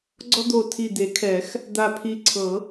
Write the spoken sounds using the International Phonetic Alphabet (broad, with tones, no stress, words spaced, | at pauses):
ɡ͡ǀɔ˦d̪o˧˩tʰi˧˩ d̪e˨˩˦kʰɛ˨˩˦x | d̪a˧˩pʰi˧˩ ǀʰɤ˨˩˦